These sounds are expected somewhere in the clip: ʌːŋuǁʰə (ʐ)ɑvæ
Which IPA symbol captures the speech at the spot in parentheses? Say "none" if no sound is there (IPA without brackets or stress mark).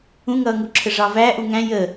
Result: ʐ